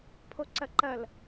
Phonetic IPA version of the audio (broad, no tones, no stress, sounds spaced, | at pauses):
pʰ o ǀ ɐ ǃ ɐ l